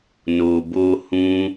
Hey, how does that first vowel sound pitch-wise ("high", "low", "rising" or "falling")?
low